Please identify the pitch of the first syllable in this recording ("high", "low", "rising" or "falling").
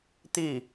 falling